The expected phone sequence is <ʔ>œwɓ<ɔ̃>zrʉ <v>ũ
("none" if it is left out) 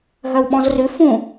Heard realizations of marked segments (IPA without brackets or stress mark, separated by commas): ɦ, ɔ̃, f